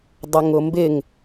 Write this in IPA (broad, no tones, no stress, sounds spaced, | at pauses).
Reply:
dˤ ʊ ŋ ʊ m b ɪ ŋ